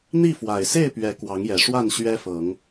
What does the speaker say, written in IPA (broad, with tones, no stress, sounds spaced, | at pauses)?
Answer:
n̪ i˥˨ f w a˨˩ ɪ̯ s e˥˨ ɪ̯ p ɥ ɛ˨˦ k w ɑ˨˦ ŋ j ɛ˨˩ ʂ w a˥˨ n ɕ ɥ ɛ˦ f ɤ˨˦ ŋ